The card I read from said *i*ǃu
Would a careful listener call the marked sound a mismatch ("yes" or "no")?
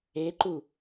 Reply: yes